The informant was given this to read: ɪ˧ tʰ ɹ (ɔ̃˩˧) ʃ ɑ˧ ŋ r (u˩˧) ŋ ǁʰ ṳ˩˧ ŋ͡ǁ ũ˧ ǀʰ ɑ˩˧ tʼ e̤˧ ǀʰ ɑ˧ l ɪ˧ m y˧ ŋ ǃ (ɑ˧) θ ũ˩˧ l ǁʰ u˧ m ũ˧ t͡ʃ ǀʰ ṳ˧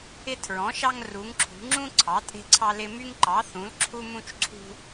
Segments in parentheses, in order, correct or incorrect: correct, correct, incorrect

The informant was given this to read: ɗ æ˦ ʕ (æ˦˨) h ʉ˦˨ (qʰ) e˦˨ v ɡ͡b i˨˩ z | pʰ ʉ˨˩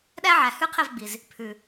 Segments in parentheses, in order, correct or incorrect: incorrect, correct

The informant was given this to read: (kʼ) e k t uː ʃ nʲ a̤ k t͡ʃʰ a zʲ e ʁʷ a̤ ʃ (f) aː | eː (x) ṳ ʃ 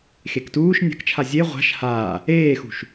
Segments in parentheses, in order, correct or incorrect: incorrect, incorrect, correct

